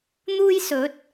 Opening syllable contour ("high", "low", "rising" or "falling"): high